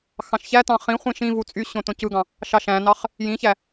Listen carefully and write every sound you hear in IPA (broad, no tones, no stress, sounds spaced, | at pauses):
x ɑ̃ ʃ ç æ t ɑ̃ χ ĩ χʷ ĩ ʃ ĩ v u t͡sʼ y ɕ õ t õ c ɯ ɡ ɑ̃ | ʃ ɑ ʃ æ̃ n ɑ χ | j ĩ ç æ